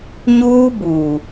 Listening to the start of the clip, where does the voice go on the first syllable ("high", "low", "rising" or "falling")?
high